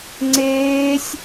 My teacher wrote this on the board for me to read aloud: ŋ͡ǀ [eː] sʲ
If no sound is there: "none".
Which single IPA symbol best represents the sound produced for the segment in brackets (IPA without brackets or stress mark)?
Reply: eː